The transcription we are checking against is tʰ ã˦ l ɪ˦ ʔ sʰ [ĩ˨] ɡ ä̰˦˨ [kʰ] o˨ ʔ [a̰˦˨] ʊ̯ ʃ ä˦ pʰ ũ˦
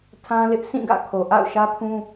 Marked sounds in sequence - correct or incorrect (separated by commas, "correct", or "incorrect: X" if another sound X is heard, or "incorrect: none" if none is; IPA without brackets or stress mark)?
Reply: incorrect: ĩ˦˨, correct, correct